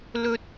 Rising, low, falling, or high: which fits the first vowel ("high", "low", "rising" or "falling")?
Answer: high